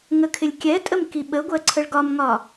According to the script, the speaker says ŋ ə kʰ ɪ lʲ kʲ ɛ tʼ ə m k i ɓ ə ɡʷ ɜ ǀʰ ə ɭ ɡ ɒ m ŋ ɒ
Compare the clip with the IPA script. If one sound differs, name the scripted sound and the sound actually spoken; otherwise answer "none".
none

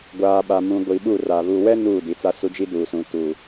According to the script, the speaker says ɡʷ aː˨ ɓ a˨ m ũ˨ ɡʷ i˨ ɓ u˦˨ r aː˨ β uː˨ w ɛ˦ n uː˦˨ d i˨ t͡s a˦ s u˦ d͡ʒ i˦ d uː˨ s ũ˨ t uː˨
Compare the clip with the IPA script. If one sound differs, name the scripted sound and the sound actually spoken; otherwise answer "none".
none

